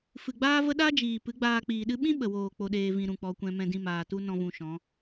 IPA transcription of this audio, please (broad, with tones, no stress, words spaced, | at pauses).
fɨ˨ɡ͡baː˦və˦ ɗa˦d͡ʒiː˨ pɨ˨˦ɡ͡baː˧k͡piː˨ɗɨ˦ ɓĩ˦ɓə˨woː˨ k͡po˧ɗeː˧vĩ˧ ɾũ˧k͡pɔ˧kʷɛ̃˦ mɛ̃˧dĩ˧maː˨tu˦ nɔ̃˦vũ˧ʃɔ̃˨˦